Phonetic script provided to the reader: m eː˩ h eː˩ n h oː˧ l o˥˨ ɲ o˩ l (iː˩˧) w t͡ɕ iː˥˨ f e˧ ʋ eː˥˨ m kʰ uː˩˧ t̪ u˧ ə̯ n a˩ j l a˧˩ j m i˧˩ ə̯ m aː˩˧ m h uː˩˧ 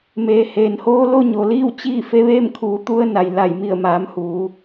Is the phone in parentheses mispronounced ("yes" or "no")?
yes